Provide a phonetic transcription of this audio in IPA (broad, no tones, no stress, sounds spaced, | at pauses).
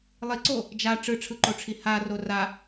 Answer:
lˠ i ǀ o | d͡ʒ a ʈ͡ʂ ɯ ʈ͡ʂʰ ɯ ǃ o ʈ͡ʂʰ i h a r o r a